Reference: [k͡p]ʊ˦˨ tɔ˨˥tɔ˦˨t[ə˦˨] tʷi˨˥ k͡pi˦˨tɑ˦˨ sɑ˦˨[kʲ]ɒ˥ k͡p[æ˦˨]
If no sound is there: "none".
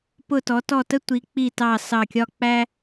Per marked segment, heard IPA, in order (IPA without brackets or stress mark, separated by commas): p, ə˥, kʲ, æ˥